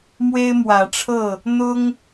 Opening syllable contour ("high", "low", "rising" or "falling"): high